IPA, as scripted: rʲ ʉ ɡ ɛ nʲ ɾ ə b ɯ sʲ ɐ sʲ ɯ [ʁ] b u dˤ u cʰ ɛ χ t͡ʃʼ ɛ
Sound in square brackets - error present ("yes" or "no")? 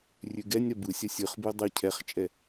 yes